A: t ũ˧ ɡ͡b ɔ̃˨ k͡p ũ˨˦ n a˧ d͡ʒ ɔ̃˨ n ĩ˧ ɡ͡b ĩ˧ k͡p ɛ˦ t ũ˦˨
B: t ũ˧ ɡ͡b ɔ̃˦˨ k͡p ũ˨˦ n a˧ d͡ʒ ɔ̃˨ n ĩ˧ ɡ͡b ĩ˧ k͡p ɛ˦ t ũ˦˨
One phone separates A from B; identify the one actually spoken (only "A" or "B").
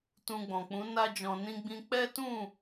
A